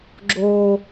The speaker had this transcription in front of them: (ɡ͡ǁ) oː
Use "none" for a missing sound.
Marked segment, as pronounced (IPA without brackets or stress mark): ɡ͡ǁ